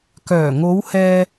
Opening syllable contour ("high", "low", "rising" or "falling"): low